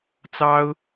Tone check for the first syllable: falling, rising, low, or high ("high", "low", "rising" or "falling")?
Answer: high